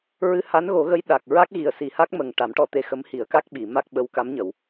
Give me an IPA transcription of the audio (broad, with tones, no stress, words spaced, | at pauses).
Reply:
ɹɨ˧ha˧˥nɣo˨˩˦ɣə˧˥j ɗa˨˩k̚ ɹa˦˥k̚ɣi˨˩ə̯ si˨˩˦ha˦˥k̚ mə˨˩ŋ ʈa˨˩˦mʈɔ˧t̪e˧xə˧˥m hi˨˩˦ə̯ka˦˥k̚ɓi˨˩˨ ma˦˥k̚ɓə˧˥wka˧˥mɲə˨˩˨w